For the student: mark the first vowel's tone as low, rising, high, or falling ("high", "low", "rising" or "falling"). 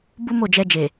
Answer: high